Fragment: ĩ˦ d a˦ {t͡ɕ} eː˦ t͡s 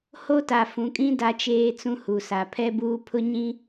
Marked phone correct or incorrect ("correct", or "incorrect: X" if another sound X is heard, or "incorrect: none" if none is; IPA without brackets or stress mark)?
incorrect: t͡ʃ